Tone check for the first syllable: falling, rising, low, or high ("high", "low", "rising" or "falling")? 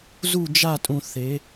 falling